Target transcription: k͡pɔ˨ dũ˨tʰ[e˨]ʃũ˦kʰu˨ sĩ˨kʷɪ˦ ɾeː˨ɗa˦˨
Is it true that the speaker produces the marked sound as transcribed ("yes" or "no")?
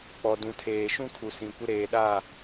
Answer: no